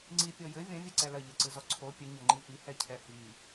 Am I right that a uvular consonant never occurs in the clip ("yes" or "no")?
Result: yes